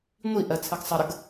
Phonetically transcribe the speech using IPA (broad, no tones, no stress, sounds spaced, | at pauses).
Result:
ŋʷ i ʔ ɜ t͡sʰ ɘ ɡ sˤ ə ɾ ə ɡ